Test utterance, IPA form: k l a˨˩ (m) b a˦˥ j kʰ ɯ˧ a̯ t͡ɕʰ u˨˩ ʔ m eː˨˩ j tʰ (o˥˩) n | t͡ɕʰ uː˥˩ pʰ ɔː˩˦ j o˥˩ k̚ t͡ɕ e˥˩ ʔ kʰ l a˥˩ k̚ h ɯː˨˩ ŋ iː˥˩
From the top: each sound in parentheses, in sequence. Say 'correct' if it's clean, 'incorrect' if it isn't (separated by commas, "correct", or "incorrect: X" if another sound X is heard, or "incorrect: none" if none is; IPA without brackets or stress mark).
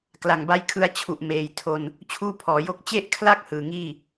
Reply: incorrect: ŋ, incorrect: o˧